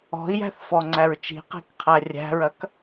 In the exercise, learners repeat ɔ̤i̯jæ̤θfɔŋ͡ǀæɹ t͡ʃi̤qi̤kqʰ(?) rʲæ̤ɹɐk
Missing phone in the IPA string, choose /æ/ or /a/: æ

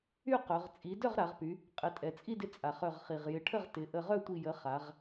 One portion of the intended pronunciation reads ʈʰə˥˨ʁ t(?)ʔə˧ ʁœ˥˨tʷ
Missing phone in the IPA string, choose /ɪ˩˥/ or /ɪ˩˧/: ɪ˩˥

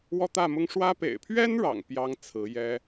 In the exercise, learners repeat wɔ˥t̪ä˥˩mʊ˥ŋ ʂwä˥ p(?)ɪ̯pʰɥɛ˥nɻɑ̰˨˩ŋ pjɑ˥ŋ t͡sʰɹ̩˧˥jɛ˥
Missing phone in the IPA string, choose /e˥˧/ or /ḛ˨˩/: ḛ˨˩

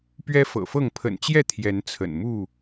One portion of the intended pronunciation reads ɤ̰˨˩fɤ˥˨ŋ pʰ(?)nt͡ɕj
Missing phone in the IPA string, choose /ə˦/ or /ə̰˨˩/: ə̰˨˩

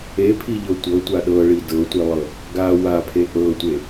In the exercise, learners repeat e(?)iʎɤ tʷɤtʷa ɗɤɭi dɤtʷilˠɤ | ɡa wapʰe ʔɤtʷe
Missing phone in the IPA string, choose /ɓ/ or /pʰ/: pʰ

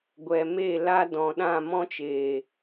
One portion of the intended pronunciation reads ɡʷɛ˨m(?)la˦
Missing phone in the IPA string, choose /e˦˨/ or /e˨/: e˦˨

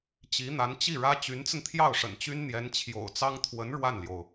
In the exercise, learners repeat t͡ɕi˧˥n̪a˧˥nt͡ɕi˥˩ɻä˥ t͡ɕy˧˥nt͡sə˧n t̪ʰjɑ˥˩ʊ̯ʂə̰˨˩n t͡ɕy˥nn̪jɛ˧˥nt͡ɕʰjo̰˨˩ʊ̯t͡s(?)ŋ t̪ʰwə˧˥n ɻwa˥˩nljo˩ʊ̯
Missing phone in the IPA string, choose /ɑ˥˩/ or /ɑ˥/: ɑ˥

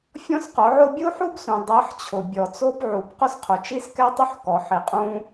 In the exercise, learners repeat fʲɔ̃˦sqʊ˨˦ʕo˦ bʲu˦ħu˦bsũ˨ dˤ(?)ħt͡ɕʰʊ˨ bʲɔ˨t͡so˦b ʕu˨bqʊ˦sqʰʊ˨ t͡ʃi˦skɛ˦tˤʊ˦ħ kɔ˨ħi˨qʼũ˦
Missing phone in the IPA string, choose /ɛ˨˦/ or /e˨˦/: ɛ˨˦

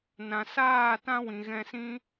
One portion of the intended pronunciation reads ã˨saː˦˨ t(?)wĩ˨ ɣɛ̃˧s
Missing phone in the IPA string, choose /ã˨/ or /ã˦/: ã˦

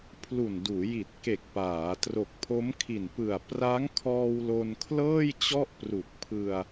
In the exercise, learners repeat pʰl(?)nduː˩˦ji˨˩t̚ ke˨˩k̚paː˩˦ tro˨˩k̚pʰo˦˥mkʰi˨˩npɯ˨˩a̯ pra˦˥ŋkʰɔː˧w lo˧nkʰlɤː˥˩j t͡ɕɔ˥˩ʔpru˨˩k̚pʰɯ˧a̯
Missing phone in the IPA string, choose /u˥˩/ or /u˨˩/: u˨˩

